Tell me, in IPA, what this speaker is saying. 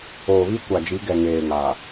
oː˨βi˦kʷa˨d͡ʒi˨˦ ɡɛ˨ŋeː˨ŋa˨

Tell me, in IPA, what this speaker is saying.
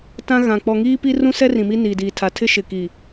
tã˦ɣã˨ k͡pɔ˨ŋiː˦pi˦ rũ˦sɛ˦ rĩ˨mi˦niː˨diː˨ tʰa˨tʰɪ˦ʃɪ˨ki˨

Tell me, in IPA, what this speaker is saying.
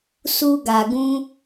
su˧ɡa˨ɡũ˧

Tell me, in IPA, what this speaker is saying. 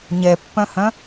ɲɛpːœ̃hœ̃

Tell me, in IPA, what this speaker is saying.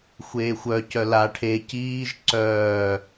xʷeːxʷœ cœla ʈʰe ciːʒ ǀœː

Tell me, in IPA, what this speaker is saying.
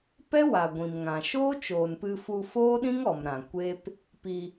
pɛ˦wa˨ ɡʷĩ˨mŋã˨ ʃoː˦t͡ʃoː˨npɨ˧fu˧ foː˦ɗĩ˦ŋɔ˨m ɾã˨ kʷe˦p | pi˧

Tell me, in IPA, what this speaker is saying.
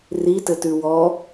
ritɘtʉ wɔ

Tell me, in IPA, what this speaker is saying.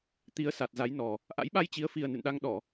t̪i˨˦ə̯sa˨˩t̚ za˨˦jnɔ˨˩ | ʔa̰˧˥jɓa˧jt͡ɕi˨˦ə̯fi˨˩ə̯ nɨ̰˧˨nɗa˧ŋ ɗɔ˧˩˨

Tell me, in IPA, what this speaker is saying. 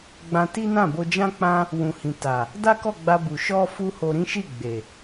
ɡ͡bã˧ti˦nã˦˨ bo˧d͡ʒã˦k͡pã˦ | wũ˨hĩ˨ ta˨ | da˦kɔ˦˨ɡ͡ba˧ bu˨ ʃɔ˧ fu˦ho˧ɾĩ˦ ʃi˦˨ɡ͡be˨

